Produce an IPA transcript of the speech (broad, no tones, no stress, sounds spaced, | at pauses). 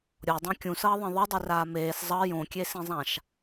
ɾʲ o dˤ ĩ kʲ ũ s ʌː ðˤ ẽ ðˤ i dˤ i r aː m eː s zˤ ʌ j õ kʲ e s ĩ zˤ ã ʃ